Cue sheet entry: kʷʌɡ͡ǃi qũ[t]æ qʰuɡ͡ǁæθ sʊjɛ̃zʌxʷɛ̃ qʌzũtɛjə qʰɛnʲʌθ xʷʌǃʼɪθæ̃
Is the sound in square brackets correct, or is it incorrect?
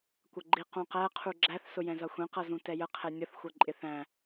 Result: incorrect: q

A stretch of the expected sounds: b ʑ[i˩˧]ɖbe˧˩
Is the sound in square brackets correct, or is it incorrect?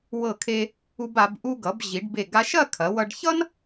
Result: correct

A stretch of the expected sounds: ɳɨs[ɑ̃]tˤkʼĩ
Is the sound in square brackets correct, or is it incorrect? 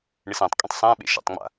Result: incorrect: ã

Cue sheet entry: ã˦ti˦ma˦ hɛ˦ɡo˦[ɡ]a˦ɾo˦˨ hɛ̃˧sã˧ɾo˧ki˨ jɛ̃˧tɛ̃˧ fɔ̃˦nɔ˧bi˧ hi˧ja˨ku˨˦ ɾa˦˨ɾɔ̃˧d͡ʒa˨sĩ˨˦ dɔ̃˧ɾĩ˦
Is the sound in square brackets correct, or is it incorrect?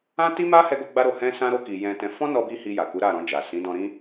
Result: incorrect: ɡ͡b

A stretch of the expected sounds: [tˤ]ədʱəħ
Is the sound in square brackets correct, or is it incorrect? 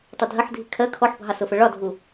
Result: correct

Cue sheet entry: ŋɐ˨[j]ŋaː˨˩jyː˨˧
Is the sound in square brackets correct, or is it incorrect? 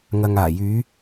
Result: incorrect: none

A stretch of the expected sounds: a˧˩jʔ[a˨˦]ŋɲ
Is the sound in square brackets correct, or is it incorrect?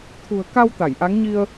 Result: correct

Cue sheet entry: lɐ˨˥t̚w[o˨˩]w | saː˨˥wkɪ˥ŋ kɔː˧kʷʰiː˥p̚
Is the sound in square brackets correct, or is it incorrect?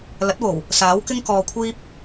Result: correct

